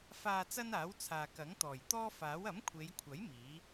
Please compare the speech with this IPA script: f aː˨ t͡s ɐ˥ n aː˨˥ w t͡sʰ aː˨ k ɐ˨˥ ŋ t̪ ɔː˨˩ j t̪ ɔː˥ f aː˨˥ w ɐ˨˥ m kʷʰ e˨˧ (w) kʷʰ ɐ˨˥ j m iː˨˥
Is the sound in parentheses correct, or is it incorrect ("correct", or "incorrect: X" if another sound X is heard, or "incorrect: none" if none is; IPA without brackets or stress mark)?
incorrect: j